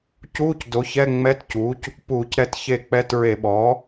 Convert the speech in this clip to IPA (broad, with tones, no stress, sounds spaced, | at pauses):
c uː˧˥˧ c d o˩˥ ç ɛ˧˥˧ ŋ͡m ɛ˧˥˧ t c uː˩˥ c | p uː˧˩˧ c ɾ ɛ˦˨ t ç e˦˨ k͡p ɛ˧˥˧ t ɹ e˧˩˧ ɓ ɔː˩˥